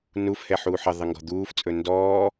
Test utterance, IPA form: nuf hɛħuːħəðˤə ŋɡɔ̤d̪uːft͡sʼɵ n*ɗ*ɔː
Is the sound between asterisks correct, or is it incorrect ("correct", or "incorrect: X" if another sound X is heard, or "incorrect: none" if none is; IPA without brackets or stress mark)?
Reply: incorrect: d